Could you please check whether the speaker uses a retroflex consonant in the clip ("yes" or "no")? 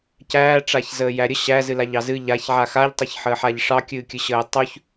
yes